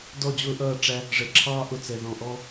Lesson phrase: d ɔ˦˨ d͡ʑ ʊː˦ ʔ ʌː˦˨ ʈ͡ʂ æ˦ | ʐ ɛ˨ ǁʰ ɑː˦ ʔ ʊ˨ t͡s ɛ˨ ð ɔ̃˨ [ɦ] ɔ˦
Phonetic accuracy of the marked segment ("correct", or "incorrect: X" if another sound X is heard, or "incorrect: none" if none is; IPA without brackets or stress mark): incorrect: ʔ